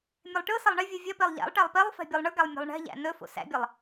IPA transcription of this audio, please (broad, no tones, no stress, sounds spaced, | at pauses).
mʲ e lˠ ʈ ɯ s ɐ lˠ ɳ e vʲ ɯ vʲ ɐ p e lˠ ʎ æ̰ lˠ ʈ æ lˠ p e lˠ f ɛ̤ bʲ ɯ lˠ ɳ ɯ ɡ æ lˠ mʲ ɛ̤ lˠ ɳ ɛ̤ ʎ æ̰ n ɵ f o̰ s æ̰ bʲ ɛ lˠ